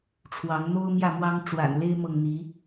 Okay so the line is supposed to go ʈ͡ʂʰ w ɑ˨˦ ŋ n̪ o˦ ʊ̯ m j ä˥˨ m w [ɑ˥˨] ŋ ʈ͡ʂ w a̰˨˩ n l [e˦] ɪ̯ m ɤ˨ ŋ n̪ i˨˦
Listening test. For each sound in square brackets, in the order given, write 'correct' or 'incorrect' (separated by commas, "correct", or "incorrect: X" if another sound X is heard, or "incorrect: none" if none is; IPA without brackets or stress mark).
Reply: incorrect: ɑ˦, correct